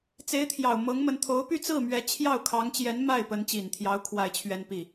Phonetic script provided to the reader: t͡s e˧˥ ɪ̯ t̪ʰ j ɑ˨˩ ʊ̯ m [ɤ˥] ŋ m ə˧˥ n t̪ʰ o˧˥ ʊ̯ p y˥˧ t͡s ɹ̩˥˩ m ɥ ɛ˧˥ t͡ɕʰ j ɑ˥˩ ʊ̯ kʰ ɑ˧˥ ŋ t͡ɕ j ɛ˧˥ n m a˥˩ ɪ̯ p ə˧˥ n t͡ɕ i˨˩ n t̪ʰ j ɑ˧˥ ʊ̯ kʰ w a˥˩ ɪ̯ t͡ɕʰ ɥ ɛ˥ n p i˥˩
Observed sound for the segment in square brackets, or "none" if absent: ɤ˧˥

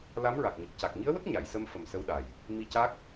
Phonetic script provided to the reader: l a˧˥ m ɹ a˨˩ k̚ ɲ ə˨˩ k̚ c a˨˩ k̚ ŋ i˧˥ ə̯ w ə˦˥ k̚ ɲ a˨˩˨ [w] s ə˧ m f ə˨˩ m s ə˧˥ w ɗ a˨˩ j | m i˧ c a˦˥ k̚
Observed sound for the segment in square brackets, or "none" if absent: j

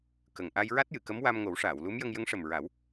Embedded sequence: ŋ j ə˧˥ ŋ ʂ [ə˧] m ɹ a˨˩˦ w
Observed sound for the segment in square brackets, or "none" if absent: ə˨˩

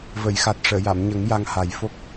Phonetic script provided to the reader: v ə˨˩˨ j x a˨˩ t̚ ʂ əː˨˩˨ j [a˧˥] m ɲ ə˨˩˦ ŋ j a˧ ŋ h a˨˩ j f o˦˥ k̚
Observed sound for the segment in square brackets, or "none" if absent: a˨˩˨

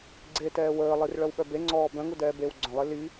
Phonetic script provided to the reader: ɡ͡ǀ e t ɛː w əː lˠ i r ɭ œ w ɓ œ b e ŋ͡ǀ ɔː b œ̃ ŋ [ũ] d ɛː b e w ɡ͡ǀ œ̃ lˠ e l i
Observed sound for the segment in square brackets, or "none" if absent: u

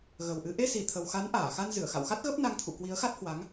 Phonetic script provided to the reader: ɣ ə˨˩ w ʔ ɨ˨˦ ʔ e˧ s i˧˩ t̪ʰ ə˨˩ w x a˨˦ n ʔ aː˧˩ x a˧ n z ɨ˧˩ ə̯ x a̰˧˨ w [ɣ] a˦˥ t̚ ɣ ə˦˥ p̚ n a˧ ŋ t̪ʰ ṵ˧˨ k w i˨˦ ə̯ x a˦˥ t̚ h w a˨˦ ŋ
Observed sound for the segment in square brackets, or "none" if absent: x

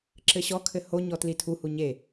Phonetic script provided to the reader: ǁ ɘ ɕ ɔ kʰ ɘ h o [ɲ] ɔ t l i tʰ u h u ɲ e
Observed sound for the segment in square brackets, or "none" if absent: ɲ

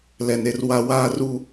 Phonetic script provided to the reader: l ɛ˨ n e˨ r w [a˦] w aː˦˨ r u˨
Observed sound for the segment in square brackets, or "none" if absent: a˨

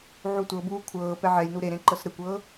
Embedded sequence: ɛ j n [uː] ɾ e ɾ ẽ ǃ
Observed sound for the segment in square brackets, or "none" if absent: u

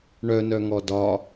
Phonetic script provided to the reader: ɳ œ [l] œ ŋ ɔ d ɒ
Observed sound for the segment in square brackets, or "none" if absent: n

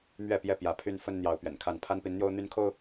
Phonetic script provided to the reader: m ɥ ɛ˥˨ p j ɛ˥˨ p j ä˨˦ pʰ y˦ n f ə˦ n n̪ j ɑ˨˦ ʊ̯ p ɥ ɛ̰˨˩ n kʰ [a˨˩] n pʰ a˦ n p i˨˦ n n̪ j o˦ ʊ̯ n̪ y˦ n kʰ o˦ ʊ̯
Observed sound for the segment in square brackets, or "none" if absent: a˥˨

